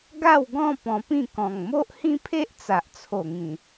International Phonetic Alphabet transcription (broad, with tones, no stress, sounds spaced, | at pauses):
ɡ a˥˧ w ɡ ɔ̃˥˧ p ɔ̃˧ p ĩ˥˧ k ɔ̃˨˩ ŋ m o˦ ʔ h ĩ˦ pʰ e˦ ʔ t͡s a˨ ʔ t͡sʰ o˨˩ ŋ ĩ˨˩